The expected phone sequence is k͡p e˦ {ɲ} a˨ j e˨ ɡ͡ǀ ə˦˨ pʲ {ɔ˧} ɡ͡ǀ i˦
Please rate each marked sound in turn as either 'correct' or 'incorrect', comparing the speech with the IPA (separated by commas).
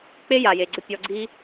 incorrect, correct